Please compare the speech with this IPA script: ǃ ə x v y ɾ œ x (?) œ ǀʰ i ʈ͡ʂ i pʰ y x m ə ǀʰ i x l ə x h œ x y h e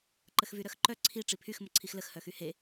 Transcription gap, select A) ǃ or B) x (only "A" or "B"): A